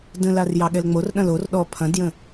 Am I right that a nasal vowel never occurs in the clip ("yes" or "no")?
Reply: no